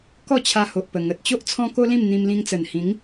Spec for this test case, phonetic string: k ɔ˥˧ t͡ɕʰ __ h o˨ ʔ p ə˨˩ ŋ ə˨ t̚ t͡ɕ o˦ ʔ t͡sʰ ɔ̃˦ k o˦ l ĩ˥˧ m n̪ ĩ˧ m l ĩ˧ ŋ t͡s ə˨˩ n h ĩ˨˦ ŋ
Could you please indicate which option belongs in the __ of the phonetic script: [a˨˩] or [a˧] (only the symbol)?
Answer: a˧